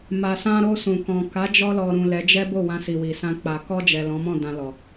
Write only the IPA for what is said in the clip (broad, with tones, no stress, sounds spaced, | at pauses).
m a˨ s ã˧ ɾ o˧ s ũ˨ k ɔ̃˨ k a˨˦ d͡ʒ ɔ˧ l ɔ˨ ɾ ũ˨ l ɛ˨˦ d͡ʒ ɛ˦ b o˦˨ w ã˧ s i˨ w i˨ s ã˧ k͡p a˨ k ɔ˧ d͡ʒ ɛ˨ l ɔ̃˨˦ m ɔ̃˦˨ d ã˧ l ɔ˨